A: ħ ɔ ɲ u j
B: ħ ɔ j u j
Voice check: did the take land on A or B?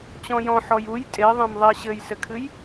B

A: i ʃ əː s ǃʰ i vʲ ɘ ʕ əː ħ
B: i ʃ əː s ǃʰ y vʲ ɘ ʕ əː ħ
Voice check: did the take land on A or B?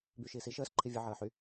A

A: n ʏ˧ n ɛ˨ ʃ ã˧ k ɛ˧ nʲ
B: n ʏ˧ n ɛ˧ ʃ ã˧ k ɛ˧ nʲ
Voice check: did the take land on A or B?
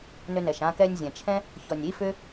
A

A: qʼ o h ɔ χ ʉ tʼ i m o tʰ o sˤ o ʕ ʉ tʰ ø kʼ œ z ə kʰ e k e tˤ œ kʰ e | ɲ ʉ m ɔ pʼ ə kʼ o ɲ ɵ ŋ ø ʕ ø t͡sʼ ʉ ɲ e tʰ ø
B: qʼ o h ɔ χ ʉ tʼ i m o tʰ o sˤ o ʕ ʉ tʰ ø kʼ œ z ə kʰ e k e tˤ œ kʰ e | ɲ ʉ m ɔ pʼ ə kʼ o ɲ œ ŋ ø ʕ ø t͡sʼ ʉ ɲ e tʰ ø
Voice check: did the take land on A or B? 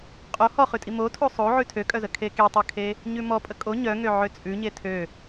B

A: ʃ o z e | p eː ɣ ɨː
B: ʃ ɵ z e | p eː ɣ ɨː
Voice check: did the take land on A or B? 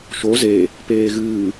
A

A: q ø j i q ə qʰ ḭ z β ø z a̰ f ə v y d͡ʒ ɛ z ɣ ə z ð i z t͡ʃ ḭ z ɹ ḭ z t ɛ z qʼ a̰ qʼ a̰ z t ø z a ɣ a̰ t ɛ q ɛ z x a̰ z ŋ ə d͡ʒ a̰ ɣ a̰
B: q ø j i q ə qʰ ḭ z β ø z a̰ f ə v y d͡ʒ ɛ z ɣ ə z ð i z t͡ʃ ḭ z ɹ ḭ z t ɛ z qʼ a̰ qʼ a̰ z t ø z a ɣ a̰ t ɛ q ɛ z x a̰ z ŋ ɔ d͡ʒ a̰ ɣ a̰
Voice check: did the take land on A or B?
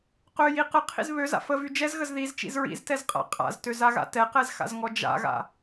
B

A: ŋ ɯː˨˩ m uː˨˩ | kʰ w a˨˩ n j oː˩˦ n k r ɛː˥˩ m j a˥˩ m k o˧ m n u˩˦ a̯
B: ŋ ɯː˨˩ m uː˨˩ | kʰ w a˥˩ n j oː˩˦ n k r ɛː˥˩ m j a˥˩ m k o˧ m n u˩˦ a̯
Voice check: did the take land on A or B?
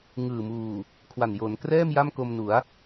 A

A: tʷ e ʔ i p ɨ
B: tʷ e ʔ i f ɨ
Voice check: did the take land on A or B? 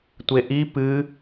A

